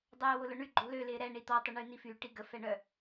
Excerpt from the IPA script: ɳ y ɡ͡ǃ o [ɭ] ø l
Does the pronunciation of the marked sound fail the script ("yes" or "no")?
yes